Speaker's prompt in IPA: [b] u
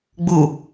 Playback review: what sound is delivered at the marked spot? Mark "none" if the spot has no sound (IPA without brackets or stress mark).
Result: ɡ͡b